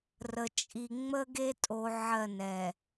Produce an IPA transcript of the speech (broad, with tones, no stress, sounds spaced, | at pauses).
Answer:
r ə˨ t͡ʃʼ i˨ ŋ͡m ə˦ ɡ e˦ tʼ o˨ ʕ ɜ˦˨ n ɛ˨